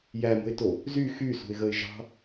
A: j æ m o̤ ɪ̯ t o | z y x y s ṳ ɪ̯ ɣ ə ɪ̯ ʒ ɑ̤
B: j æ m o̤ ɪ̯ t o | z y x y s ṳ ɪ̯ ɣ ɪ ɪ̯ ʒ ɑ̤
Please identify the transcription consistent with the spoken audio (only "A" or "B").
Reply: A